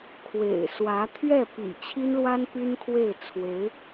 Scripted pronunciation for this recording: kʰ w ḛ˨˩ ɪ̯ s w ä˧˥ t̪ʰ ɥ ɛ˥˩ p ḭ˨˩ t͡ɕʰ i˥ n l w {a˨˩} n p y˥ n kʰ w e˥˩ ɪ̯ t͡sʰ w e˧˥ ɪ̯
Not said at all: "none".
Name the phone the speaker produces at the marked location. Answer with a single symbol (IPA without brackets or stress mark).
a˥